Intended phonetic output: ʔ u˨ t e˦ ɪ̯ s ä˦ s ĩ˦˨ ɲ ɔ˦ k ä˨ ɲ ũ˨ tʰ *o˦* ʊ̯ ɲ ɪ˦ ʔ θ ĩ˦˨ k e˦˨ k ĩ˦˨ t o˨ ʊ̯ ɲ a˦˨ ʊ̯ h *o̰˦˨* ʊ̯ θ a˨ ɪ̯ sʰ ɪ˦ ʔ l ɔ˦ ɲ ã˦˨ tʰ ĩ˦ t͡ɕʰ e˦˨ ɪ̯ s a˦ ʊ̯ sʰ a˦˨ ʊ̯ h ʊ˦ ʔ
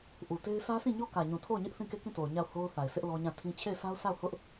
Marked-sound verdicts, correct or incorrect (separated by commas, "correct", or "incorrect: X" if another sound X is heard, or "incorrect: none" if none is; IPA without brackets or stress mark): incorrect: o˦˨, incorrect: o˦